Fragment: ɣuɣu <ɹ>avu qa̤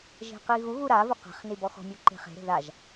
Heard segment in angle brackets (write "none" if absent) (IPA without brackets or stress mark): ɾ